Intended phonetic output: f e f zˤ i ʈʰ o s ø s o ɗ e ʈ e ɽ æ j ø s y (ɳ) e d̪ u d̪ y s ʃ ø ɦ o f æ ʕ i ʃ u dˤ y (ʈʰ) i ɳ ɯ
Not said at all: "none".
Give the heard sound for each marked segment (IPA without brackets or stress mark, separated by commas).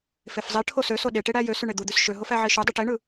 ɳ, ʈ